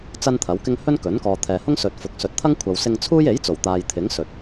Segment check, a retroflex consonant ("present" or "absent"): absent